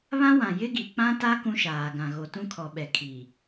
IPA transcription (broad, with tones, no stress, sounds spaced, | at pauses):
β ã˦ w ã˨ j ɪ˦ ɡ i˨ k͡p ã˦ t a˦ k ũ˦ ʃ aː˨ ɡ ã˨ ɣ o˨ t ũ˦ kʰ ɔ˨ ɓ ɛ˨ kʰ i˨